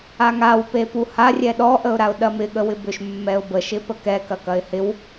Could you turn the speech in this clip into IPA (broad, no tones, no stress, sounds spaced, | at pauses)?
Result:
a ŋ a w p e p u h a rʲ ɛ ɗ ɔ ʔ ə ʊ̯ ɾ a ʊ̯ ɗ ɐ m ɪ ɠ ə w ɪ b ʏ ʃ mː ɛ ʊ̯ b ə ʃ ɪ p ə k ɛ k ɐ k ɐ ɪ̯ h ɪ w